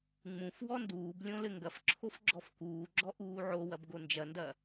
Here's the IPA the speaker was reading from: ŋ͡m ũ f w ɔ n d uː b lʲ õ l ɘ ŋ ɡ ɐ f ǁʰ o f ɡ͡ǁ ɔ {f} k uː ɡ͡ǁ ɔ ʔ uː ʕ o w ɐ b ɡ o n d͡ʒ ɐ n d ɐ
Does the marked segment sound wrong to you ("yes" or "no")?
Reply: no